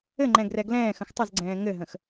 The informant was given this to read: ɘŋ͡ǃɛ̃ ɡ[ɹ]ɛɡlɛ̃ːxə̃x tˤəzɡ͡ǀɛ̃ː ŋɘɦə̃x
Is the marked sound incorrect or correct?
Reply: incorrect